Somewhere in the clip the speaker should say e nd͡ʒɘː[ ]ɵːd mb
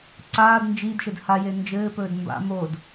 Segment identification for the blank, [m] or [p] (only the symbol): p